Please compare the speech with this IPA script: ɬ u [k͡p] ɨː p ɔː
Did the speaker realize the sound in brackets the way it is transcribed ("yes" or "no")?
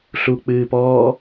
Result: yes